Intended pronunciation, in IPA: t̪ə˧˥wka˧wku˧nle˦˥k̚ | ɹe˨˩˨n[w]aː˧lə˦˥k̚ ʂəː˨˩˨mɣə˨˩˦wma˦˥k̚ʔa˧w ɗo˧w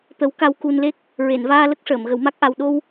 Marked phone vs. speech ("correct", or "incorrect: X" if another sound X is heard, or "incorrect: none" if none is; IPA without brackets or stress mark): incorrect: v